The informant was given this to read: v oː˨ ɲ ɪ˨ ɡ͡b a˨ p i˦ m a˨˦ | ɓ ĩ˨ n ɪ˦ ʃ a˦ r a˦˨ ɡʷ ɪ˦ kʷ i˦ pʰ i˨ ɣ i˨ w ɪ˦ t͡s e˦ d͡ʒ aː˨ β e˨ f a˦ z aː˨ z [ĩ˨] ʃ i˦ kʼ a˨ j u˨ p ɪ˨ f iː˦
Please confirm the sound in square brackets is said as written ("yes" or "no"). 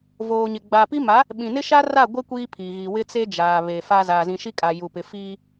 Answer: yes